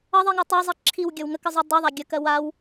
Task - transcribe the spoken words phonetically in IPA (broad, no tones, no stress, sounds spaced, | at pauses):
ʌ ðˤ i ŋ ɜ tˤ ɜ zˤ i ǁʰ i w ɡʲ ʌ w ŋ ə k ə zˤ u dˤ u ðˤ a ɡʲ ə k ɜ w a w